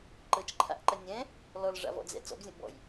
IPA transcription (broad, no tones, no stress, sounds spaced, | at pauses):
ǃ ɤ t͡ʃ ǃʰ a̰ ʔ ǃ ɜ nʲ ɛ̃ | l ɔ l ʐ a̰ v ɔ̰ d͡z ɛ̰ t͡s ɔ̰ b zʲ ɔ̃ ʔ b ɔ̰ j